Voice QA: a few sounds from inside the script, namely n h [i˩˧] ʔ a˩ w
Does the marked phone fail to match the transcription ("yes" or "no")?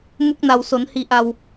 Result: no